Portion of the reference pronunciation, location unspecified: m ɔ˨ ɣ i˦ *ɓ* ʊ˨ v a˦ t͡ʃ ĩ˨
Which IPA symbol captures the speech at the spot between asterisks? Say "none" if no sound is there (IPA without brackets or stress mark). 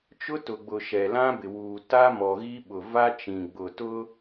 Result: ɓ